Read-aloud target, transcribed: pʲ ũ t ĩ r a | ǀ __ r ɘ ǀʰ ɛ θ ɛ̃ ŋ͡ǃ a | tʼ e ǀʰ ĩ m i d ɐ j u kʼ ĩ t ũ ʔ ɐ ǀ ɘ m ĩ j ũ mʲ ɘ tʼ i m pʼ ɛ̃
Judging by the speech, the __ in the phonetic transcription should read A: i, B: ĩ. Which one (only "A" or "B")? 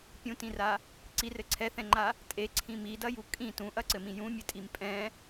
A